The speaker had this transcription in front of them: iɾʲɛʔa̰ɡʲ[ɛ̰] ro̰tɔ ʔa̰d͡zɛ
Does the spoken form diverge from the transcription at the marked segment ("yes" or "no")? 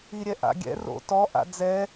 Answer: no